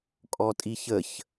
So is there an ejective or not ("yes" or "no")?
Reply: yes